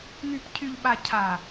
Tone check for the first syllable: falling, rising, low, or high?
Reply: low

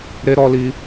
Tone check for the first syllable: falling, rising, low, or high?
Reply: high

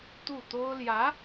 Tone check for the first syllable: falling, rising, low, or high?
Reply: falling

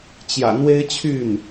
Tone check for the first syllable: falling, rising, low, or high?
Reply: low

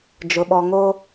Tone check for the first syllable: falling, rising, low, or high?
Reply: low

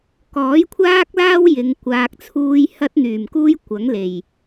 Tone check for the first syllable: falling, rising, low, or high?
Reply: rising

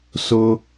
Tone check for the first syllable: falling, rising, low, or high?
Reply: high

